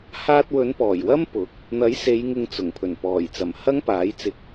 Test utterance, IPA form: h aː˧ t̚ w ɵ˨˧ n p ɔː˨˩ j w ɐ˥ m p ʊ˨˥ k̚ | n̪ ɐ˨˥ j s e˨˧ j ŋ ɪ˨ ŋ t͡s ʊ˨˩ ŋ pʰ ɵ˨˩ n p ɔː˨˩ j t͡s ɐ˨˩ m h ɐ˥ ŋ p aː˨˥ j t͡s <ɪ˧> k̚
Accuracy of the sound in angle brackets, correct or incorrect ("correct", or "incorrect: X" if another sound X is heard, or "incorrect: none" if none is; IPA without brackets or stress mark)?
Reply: correct